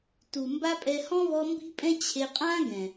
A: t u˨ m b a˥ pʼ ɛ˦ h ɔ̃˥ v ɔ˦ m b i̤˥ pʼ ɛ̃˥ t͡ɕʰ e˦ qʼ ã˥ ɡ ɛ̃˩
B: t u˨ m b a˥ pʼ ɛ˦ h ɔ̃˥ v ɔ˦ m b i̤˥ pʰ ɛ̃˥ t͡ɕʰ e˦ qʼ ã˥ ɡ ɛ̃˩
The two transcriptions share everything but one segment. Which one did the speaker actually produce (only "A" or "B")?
A